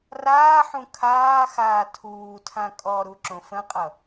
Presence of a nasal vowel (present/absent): present